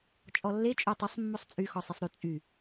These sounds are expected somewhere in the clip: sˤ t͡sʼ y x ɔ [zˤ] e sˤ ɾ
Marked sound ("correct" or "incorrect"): incorrect